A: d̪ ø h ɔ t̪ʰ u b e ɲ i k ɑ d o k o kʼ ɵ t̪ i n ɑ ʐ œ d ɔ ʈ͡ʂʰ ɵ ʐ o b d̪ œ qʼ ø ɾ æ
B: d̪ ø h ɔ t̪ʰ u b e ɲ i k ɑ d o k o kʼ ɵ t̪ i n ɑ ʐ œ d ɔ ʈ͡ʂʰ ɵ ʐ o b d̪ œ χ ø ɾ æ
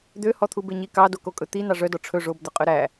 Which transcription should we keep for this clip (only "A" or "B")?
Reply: A